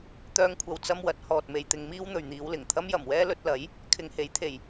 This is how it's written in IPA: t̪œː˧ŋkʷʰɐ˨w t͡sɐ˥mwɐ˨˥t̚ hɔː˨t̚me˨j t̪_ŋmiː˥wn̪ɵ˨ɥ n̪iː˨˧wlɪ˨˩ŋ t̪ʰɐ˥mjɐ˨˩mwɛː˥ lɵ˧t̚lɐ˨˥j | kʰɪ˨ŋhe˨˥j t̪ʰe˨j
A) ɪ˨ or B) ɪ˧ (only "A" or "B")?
B